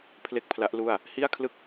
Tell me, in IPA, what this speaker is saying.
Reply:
pʰ l e˥˩ k̚ pʰ l a˦˥ ʔ l u˥˩ a̯ | h i˥˩ a̯ kʰ l ɯ˥˩ k̚

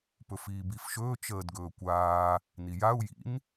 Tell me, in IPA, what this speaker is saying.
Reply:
p ɵ f iː b i f ʃ ɵː t͡ʃ əː d ɡ ɵː kʷ aː | n i j a u̯ j ḭ n

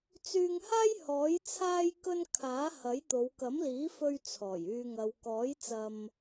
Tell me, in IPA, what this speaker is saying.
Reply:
t͡s yː˧ ŋ h aː˥ j h ɔː˨˥ j t͡sʰ aː˥ j k ɵ˥ n kʰ aː˨˥ h ɐ˨˥ j t̪ o˨˧ w k ɐ˨˥ m l iː˨˥ f ɵ˧ ɥ t͡sʰ ɔː˨˩ j yː˨ ŋ ɐ˨ w k ɔː˨˥ j t͡s ɐ˧ m

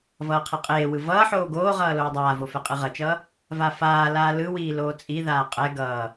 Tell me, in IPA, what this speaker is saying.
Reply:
v ʌː qʰ ɛ qʼ eː w ɯ v ʌː ħ oː ɡ oː ʁ ʌː l oː dˤ aː v o f ɛ qʼ ɯ ʁ ʌ t͡ʃ ʌː | v a f aː l aː l ɯ w iː l oː t͡sʼ i ð aː qʼ ɛ ɡ ʌː

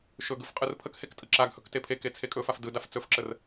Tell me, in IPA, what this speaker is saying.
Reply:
ʃ ɵ ɡ ɯ f qʼ ɯ r pʰ ə k h e k tʼ ɯ ǁ a ɡ h ɵ k t e pʰ e k e t͡sʰ e kʼ ɵ f a f d ɯ d a f t͡s ɵ f ǁ ə r

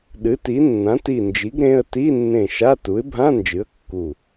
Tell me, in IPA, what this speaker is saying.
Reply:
ɗ ɨ˩˥ t i˩˥ nː ã˩˥ t i˧˩ n d͡ʒ i˩˥ ɡ ɾ ẽ˧˥˧ ə̯ t i˧˥˧ nː ẽ˧˩ ʃ a˧˥˧ t u˩˥ ɪ̯ bʱ ã˧˥˧ n d͡ʒ ɨ˩˥ ə̯ kː u˧˩

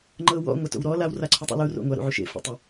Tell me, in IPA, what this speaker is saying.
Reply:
ŋ͡ǃ ɤ w ɔ̰ ŋʷ a t o̰ w ɾ ɔ l a w r a ǀʰ u tˤ ṵ l u r o̰ ŋʷ a ɾ ṵ ʕ u ʃ ḛ f ṵ tˤ ɯ

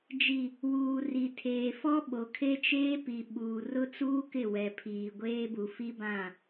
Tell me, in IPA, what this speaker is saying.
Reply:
d͡ʒ i˨ | w uː˨ r i˨ tʰ eː˨ f ɔ˦ ɓ o˨ kʰ e˦ t͡ʃ eː˦ p i˨ ɓ uː˨ r ʊ˦ t͡s uː˦ k ɪ˦˨ w ɛ˨ pʰ iː˨ ɡʷ eː˦ b u˨ f i˦ b ã˦˨

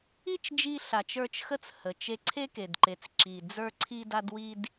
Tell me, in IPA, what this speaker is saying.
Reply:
i˦ t͡ʃ d͡ʒ i˧ ɬ a˨ t͡ʃ ə˞˧ t͡ʃ x ə˦˨ t͡s h ə˨ t͡ʃ e˧ ǀʰ e˦ k e˨ d ǃ e˨ t͡s ǁ i˨ d͡z ə˞˦ ǀʰ i˦ d a˦ d w i˦ d

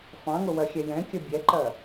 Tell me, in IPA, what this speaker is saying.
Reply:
f ɑ̃ ŋ ʊ w ɜ xʲ ɛ j ɛ̃ kʲ ə bʲ ɛ ǃ ɜ

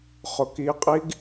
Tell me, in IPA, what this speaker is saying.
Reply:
χ ʊ k i qʼ i ɡ

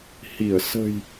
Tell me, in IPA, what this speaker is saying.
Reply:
h i˧˩ ə̯ s ə̤˨˩ j

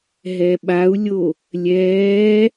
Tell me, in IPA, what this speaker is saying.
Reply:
ɦ ɛ ɓ a u̯ lʲ o | lʲ ɛː

